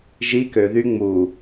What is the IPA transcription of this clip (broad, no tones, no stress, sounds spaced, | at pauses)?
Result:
ʒ i k ø ð y ŋ͡m u